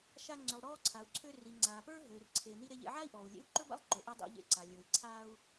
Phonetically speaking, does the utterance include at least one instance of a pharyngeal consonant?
yes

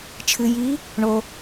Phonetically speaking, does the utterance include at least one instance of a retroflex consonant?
yes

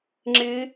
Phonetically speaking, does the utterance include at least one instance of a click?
yes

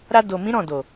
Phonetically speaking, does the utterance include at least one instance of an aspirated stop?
no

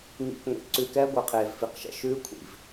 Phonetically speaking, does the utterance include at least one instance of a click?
yes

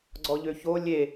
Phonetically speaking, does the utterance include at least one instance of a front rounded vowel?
yes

